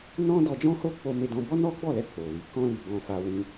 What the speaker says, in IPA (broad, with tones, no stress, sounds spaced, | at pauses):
n ɔ̃˦ d ɔ˧ d͡ʒ ɔ̃˦ h o˦ k͡p o˧ m e˧ d ɔ̃˧ b ɔ˦ n ɔ˦ ɡ͡b ɔ˦˨ l ɛ˧ k͡p o˨ l i˨˦ k ɔ̃˧ l i˨ b ɔ̃˧ f a˧ w ĩ˧